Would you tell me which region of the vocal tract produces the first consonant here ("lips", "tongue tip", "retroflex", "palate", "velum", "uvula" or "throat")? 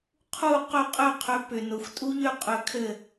uvula